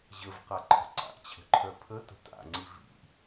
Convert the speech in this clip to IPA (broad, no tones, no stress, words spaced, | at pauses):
ʑəvqaǃʰə̤ ǀa̰ʔt͡ɕʰə̤ǃʰœ pʰətə̤ ta̰ŋ͡ǀi vḭ